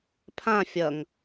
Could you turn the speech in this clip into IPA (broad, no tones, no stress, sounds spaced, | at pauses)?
pʰ ã fʲ ʌ ŋ